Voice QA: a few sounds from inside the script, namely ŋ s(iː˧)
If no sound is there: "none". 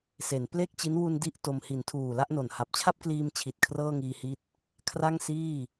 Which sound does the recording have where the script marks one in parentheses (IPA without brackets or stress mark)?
iː˥˩